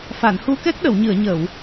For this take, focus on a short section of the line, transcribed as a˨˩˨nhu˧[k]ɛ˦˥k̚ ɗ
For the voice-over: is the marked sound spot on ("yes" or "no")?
yes